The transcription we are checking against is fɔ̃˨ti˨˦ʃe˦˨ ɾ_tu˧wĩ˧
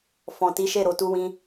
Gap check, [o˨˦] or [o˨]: o˨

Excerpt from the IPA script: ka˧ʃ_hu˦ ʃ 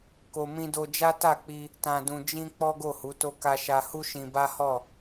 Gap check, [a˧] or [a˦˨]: a˧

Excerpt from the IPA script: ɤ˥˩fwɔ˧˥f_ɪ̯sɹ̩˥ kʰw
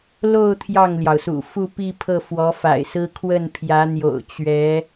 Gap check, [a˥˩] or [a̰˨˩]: a̰˨˩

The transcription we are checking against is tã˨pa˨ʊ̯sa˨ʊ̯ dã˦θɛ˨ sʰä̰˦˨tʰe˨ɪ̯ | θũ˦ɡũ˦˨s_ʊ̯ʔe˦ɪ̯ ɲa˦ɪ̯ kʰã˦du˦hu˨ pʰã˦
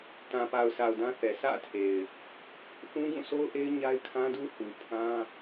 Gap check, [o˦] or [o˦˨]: o˦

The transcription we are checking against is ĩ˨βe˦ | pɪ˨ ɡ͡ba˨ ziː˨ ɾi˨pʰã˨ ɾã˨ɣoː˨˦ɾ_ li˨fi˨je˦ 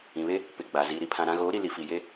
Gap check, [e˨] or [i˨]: i˨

